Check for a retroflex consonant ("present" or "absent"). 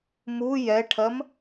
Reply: present